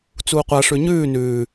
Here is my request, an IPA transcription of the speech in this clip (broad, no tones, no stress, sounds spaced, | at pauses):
t͡s uː qʷ a ʂ ʉ ɲ ʉː n ʉː